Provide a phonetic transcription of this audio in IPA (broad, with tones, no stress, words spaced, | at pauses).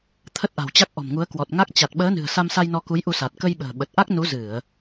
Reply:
t̪ʰə˦˥t̚ʔa̤˨˩wt͡ɕa˦˥k̚ ʔɔ̤˨˩mŋu˨˦ə̯kwɔ˨˩t̚ ŋa˦˥k̚ t͡ɕa˨˩t̚ɓəː˨˦ nɨ̤˨˩ə̯sa˧msa˧j nɔ˧ku˨˦jʔu˧sa˨˩t̚ kə˧j ɓə̤ː˨˩ɓə˨˩t̚ʔa˦˥k̚ nu˨˦zɨ˧˩˨ə̯